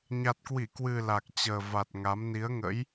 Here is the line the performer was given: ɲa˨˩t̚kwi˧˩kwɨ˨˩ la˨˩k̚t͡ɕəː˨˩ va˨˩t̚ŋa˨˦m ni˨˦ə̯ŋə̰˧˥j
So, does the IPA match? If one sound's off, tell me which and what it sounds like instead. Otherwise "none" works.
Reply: none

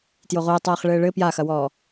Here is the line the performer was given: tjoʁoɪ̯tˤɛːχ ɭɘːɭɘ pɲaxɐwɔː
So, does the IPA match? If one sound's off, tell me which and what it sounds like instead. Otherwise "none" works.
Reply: ɲ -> j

